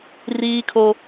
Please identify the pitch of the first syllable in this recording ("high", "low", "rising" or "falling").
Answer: high